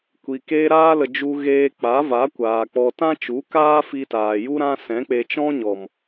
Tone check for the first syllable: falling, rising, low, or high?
low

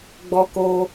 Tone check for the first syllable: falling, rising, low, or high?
high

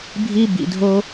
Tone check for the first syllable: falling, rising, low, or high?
high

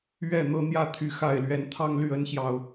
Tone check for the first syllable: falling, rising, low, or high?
falling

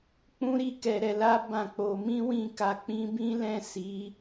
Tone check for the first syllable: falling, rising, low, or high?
high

